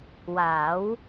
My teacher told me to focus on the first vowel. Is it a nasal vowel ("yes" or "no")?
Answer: no